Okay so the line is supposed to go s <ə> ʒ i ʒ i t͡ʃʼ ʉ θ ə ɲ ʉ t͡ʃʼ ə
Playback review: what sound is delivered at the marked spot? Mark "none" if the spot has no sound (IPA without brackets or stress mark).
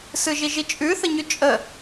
ɯ